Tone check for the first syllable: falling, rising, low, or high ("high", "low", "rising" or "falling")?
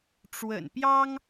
low